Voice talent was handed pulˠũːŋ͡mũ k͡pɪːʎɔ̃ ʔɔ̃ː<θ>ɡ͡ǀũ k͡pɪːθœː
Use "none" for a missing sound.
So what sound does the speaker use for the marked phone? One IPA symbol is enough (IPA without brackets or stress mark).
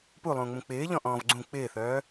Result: v